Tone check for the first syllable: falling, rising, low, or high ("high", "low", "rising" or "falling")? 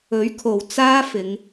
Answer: rising